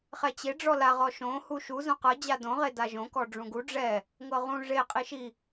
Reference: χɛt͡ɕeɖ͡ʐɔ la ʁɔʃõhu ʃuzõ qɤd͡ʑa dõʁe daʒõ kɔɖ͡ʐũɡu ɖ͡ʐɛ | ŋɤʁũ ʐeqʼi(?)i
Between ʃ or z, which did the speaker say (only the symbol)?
ʃ